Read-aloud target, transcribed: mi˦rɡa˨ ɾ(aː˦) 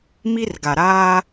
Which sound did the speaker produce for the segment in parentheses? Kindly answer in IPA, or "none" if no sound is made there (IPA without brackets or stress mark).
aː˦